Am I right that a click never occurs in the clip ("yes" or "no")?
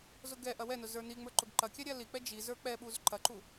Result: no